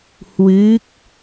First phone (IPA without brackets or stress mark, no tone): h